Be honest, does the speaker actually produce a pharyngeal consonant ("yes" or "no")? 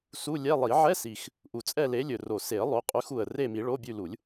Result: yes